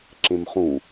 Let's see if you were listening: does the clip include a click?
yes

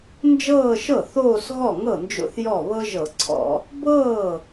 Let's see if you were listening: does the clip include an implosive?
no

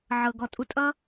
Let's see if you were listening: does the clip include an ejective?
yes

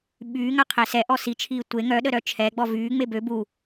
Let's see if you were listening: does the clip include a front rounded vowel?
yes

